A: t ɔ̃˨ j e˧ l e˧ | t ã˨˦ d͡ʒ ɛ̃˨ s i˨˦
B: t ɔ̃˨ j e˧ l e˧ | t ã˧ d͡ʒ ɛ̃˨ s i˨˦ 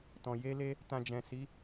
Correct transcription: B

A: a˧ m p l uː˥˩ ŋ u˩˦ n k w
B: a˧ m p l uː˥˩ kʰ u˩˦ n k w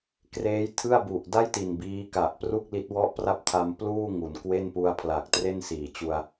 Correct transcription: A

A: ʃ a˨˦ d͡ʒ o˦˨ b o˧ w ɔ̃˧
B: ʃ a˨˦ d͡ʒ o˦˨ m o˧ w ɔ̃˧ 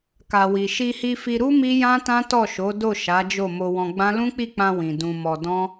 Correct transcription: B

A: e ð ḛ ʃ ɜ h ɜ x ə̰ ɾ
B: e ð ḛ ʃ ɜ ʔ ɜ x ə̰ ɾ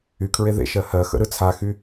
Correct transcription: A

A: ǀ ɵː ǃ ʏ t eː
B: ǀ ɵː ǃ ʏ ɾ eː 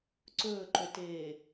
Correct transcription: A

